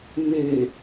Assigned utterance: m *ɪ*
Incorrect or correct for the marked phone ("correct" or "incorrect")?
incorrect